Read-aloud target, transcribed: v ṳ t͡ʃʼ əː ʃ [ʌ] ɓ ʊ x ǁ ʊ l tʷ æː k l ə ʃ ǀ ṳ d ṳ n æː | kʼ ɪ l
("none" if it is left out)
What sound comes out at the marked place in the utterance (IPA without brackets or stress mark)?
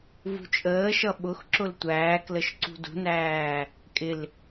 ʌ